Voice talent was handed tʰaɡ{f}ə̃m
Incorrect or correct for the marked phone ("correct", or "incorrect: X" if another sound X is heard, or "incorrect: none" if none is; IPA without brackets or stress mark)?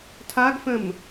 correct